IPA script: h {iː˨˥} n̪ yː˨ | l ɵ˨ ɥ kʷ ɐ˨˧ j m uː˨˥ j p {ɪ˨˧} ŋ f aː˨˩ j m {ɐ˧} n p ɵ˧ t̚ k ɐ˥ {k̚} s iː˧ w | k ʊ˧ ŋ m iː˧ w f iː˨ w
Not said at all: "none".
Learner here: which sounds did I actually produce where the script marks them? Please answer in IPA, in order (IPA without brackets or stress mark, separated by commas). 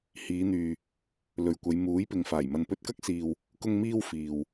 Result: iː˨˧, ɪ˨, ɐ˨, k̚